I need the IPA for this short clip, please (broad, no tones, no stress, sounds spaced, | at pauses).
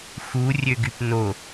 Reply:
x u rʲ ø ɡ y p n o